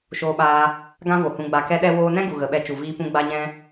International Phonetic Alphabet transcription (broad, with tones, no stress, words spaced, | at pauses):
ʃoː˧ɓaː˧ | ɡã˦vo˨ hũ˨ɡ͡ba˨kɛ˧ ɗɛ˧woː˧nɛ̃˦ ɡu˨ɣə˨ɓɛ˧ t͡ʃu˨viː˧ pũ˧ɡ͡ba˧ɲɛ̃˧